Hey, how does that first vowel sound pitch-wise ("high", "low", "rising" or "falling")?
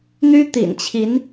high